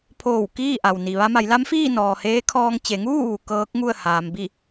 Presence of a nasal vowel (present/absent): absent